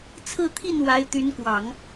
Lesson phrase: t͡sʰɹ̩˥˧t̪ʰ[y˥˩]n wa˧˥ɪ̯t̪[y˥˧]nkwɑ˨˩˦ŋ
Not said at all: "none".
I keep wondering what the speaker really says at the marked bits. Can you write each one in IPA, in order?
i˥˩, y˧˥

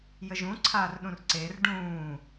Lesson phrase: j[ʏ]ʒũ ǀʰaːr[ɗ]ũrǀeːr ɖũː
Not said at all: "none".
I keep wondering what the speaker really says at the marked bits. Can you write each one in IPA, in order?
ə, ɗ

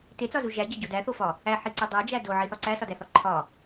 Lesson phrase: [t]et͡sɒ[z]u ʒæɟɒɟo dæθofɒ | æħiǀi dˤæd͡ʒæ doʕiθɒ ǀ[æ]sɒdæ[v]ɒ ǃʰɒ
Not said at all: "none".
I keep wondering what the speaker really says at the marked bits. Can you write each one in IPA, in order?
t, z, æ, θ

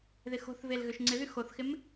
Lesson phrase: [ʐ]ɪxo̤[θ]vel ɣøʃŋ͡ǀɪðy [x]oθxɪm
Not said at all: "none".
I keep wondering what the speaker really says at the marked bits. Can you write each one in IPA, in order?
ð, θ, x

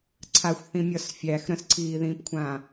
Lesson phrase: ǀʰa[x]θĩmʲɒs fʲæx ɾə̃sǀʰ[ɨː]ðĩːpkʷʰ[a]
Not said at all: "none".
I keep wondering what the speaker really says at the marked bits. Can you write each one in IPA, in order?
xʷ, iː, ã

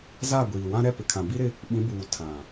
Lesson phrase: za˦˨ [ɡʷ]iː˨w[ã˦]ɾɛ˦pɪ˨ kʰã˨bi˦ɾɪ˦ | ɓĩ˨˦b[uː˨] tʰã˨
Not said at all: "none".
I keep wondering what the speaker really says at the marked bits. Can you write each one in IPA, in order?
ɡʷ, ã˦, uː˨

